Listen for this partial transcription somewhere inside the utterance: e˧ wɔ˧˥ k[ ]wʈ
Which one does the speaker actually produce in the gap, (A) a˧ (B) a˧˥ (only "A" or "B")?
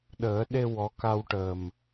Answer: A